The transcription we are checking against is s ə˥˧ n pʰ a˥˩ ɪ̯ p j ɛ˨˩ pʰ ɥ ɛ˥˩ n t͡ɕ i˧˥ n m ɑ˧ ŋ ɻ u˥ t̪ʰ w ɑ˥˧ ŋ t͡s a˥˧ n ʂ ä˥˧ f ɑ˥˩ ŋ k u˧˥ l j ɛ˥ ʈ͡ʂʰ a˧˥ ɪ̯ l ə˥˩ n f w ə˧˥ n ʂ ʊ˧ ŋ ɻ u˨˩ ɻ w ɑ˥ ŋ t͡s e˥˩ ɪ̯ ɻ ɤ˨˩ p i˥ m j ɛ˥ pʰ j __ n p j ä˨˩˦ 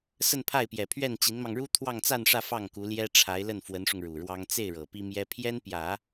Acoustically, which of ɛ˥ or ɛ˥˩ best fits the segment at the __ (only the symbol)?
ɛ˥